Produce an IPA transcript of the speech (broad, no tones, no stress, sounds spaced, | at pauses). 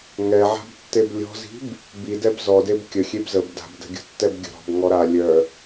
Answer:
ŋ ɛ ʕ a̤ b tː e b lʲ ɔ̤ z i̤ b | b i d ɛ b z ɔ d e b kʲ ə xʲ e b z ə b d a̤ b d ə̤ ɡʲ ə̤ tː ɛ b ɡʲ ə̤ ɾ ɔ̤ b ŋ ɔ ɾ a lʲ œ